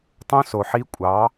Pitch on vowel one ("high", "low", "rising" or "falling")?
high